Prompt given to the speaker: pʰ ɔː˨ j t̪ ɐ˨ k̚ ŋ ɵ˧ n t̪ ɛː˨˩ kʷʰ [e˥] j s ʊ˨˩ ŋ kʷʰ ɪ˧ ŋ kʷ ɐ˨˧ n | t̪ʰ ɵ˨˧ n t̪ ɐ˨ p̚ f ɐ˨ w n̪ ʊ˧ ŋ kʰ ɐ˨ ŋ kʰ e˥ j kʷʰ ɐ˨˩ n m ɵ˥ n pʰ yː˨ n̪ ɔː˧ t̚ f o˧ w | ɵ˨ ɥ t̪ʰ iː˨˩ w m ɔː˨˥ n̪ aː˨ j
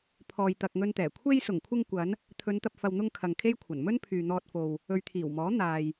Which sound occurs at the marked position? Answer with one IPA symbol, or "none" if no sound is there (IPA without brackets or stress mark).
e˧